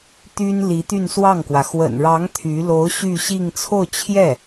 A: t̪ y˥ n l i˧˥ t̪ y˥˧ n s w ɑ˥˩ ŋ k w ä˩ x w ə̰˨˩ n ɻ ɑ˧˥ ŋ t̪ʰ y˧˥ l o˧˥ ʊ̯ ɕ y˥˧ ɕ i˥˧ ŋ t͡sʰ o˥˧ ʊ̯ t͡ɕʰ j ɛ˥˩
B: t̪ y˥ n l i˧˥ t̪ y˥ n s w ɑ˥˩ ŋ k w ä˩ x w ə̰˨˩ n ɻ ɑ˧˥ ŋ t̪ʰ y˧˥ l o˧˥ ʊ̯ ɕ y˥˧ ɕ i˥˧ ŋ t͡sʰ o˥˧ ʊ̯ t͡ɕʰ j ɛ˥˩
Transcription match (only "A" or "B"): A